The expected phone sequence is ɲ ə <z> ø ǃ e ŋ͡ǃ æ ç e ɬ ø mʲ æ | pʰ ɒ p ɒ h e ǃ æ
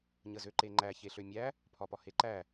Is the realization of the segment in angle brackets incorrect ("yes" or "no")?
no